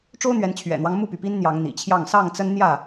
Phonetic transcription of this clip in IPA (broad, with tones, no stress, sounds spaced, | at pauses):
ʈ͡ʂ o˦ ʊ̯ n̪ ɥ ɛ˨˦ n t͡ɕʰ ɥ ɛ̰˨˩ n̪ w ɑ˦ ŋ m u˥˨ p y˩ p i˦ n n̪ j ɑ˨˦ ŋ n̪ ḭ˨˩ t͡ɕʰ j ɑ˥˨ ŋ s ɑ˥˨ ŋ t͡s ə˦ n n̪ j ä˥˨